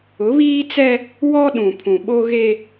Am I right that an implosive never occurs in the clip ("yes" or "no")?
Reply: no